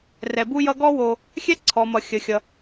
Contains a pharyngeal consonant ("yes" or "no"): no